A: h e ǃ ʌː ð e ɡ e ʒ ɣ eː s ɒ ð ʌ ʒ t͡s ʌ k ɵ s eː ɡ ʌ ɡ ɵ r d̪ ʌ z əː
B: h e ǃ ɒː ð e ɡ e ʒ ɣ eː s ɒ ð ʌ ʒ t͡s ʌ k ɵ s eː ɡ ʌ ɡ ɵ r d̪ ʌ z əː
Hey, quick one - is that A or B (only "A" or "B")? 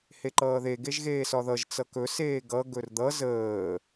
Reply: A